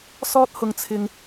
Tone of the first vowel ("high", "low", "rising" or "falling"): high